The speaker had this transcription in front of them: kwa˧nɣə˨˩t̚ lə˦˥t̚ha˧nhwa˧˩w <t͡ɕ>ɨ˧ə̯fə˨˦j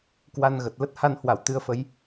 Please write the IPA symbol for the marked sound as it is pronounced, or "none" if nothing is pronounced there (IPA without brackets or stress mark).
t̪